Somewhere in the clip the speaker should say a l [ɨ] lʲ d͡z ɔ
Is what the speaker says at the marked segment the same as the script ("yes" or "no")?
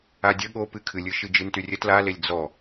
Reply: no